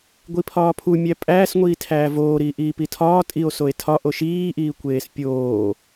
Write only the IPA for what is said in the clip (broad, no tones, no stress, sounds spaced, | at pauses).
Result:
ɡʷ i pʰ ɒː pʰ u mʲ æ pʼ æː s ŋʷ iː tʰ æː v oː ɾ iː ʔ iː p i tʰ ɒː tʼ i o̯ s o e̯ tʰ ɒ ʔ o ʃ iː ʔ iː kʷ eː s pʲ oː